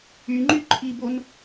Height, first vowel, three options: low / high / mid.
high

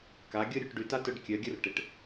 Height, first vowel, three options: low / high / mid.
low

